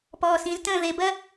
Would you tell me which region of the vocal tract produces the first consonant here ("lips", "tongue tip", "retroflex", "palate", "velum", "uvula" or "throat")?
lips